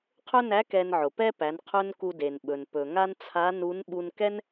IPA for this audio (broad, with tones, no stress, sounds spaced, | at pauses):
qʰ ɵ˥ n æ˧˥ k ɛ˧ n ʕ ʊ˩ p ɛ˥ p æ˩˧ n qʰ ɵ˥ n k u˧ d e˩ n ɓ ɵ˩ n p ɵ˩ ŋ a˥ n t͡sʰ a˧˥ n u˧˥ n ɓ u˧ n k ɛ˥ n